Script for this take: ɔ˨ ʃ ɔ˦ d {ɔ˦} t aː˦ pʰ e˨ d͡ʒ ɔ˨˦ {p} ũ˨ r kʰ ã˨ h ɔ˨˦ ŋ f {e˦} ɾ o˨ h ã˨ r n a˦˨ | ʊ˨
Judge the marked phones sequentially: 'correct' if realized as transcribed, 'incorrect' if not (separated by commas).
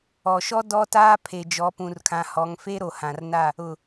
correct, correct, correct